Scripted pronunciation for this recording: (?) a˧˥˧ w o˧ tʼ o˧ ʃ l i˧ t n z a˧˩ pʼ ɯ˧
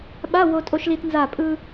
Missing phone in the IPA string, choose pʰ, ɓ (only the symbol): ɓ